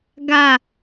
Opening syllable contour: falling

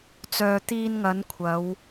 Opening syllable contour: low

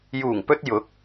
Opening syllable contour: low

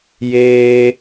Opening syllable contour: high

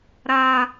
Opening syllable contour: high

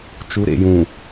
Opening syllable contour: rising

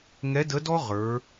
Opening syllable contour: rising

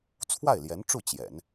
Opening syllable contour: falling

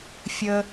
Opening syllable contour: low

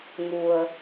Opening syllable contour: low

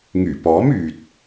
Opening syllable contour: low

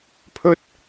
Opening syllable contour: high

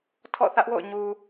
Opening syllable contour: falling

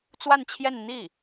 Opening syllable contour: falling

